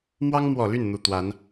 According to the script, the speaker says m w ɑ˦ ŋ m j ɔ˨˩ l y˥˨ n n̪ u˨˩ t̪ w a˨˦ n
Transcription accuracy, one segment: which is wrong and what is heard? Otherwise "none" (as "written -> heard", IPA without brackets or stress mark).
j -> w